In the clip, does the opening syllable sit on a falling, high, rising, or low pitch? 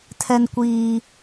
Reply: low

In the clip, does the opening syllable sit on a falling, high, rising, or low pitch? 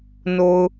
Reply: low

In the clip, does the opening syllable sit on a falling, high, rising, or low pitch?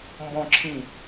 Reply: falling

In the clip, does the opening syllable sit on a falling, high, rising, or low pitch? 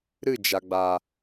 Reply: falling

